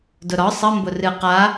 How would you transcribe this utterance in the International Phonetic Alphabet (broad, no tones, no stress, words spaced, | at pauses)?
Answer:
dʊɾɒ sˤə mbʊrɨ qa